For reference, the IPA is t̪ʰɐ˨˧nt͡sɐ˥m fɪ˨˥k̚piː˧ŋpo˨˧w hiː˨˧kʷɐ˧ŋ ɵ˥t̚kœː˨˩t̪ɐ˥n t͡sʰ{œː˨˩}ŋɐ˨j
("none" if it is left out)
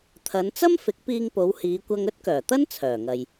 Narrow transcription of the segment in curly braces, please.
œː˨˩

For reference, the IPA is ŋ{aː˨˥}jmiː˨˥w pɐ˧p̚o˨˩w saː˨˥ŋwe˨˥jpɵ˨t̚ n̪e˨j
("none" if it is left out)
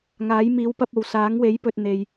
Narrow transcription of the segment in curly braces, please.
aː˨˥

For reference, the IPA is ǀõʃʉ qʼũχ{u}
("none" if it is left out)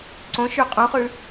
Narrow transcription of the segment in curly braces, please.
ʉ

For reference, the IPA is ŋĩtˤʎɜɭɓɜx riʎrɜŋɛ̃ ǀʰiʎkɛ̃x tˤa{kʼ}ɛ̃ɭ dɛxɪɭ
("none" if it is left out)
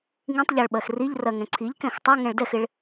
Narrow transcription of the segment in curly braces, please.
ŋ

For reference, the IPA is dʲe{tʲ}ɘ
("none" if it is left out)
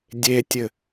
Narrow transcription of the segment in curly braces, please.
tʲ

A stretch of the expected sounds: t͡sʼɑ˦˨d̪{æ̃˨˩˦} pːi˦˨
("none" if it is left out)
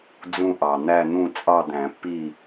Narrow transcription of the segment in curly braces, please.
æ̃˨˩˦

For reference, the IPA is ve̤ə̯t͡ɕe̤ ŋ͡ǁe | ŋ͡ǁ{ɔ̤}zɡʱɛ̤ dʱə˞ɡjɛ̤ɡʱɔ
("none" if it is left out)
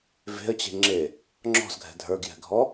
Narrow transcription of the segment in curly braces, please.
ɔ̤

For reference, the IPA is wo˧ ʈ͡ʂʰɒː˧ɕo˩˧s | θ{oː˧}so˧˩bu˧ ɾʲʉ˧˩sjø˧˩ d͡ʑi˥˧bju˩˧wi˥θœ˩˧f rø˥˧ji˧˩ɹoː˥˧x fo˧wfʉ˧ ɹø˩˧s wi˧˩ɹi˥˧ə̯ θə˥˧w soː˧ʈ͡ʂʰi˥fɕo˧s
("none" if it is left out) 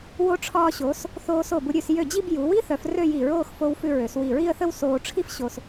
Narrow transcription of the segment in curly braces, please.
oː˧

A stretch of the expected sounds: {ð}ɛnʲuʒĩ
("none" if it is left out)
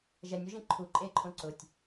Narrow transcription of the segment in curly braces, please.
ʒ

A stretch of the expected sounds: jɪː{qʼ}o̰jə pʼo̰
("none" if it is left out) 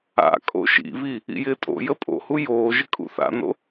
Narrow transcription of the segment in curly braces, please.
tʼ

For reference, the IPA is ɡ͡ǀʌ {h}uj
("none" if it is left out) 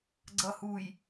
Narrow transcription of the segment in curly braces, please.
h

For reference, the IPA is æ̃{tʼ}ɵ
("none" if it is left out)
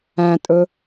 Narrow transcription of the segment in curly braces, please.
tʼ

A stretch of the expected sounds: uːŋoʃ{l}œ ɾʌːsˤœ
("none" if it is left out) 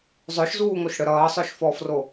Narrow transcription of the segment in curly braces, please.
ɽ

